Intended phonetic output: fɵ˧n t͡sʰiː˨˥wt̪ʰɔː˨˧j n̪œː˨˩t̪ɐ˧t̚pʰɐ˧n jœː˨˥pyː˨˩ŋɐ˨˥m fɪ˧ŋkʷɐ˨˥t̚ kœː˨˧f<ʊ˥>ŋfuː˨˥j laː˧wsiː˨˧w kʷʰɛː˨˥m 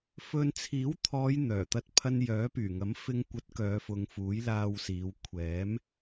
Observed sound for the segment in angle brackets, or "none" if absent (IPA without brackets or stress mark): ʊ˨˧